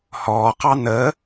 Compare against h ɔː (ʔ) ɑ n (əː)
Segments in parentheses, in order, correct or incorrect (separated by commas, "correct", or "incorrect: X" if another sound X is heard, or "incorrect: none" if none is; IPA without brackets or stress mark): incorrect: q, correct